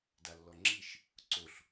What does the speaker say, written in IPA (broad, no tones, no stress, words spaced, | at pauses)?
dalːɔŋ͡ǁiʃ | ǀoɬ